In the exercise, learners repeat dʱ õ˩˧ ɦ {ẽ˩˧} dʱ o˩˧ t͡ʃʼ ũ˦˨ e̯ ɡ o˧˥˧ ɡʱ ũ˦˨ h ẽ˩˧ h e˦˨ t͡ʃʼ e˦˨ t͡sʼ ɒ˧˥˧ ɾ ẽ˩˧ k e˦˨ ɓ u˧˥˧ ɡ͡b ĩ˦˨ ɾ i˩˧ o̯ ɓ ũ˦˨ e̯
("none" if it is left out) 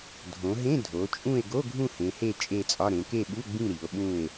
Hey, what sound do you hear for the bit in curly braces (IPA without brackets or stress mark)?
ẽ˧˥˧